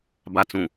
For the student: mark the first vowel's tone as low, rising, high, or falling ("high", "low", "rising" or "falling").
low